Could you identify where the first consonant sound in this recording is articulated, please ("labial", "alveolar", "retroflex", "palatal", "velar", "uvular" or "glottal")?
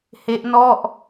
glottal